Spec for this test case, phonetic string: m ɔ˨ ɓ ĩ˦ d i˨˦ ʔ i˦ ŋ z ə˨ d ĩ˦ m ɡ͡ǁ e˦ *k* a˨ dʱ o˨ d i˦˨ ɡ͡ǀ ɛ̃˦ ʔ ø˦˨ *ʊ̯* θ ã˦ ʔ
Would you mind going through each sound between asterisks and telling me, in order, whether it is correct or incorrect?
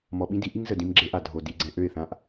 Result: incorrect, incorrect

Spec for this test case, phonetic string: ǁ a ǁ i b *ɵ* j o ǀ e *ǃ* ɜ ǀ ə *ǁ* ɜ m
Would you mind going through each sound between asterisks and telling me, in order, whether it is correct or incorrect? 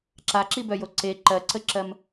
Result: incorrect, correct, correct

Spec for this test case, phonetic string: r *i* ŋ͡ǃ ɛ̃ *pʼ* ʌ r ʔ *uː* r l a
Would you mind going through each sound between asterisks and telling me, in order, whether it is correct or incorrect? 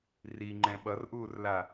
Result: correct, incorrect, correct

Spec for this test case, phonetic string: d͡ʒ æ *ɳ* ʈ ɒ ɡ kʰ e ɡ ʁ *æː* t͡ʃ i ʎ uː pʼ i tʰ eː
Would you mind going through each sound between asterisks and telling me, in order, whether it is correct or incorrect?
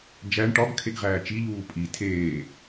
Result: correct, correct

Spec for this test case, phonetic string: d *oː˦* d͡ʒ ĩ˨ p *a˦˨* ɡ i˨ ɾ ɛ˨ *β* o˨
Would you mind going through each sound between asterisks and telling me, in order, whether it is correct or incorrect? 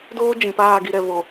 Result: correct, incorrect, correct

